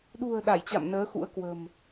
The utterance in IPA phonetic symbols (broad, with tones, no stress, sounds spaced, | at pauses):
ɗ ṳ˨˩ ə̯ ɗ a˧˩ j t͡ɕ a̰˧˨ m n əː˨˦ x ṵ˧˥ ə̯ k w ə̤˨˩ m